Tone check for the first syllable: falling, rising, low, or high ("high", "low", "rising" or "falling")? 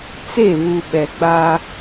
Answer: falling